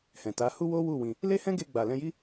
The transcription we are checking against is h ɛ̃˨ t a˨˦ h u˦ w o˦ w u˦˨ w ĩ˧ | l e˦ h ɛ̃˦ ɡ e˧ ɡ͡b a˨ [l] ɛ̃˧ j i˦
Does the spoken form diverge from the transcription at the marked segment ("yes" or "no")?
no